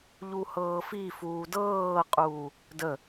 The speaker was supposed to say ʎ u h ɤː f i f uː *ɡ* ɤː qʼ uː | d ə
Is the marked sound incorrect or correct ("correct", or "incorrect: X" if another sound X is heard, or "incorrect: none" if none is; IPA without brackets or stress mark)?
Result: incorrect: d